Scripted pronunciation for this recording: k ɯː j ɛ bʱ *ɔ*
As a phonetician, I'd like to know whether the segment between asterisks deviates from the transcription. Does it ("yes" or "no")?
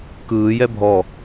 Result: no